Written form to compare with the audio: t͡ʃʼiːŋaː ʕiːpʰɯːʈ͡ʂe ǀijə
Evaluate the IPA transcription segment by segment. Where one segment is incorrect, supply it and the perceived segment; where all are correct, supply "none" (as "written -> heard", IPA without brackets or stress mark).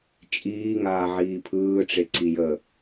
none